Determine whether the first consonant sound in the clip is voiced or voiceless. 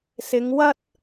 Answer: voiceless